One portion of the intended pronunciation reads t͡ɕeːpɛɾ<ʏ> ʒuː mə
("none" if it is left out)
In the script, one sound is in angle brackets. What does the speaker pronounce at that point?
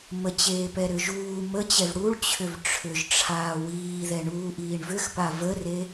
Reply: ʏ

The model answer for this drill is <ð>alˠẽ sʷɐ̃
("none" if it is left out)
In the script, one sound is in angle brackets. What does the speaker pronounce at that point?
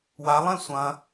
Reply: w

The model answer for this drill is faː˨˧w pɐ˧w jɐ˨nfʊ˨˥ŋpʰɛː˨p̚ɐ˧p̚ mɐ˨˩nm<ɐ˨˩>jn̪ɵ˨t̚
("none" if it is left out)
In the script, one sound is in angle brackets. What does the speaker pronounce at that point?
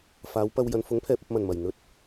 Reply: ɐ˨˩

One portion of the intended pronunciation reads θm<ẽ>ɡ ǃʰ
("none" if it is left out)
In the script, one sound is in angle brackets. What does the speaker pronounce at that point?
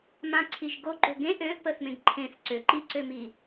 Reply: ẽ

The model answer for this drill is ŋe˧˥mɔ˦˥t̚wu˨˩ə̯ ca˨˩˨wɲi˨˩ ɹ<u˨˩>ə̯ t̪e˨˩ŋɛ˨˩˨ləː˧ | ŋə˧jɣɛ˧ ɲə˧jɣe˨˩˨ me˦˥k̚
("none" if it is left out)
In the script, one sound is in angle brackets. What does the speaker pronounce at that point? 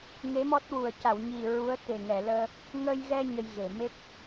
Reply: u˧˥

